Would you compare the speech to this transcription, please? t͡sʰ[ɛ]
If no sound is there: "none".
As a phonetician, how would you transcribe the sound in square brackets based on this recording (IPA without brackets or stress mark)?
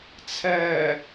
ɛ